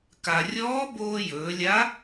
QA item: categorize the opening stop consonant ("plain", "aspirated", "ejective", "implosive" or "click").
plain